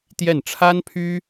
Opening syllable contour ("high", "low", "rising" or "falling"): falling